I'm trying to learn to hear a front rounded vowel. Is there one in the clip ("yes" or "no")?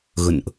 no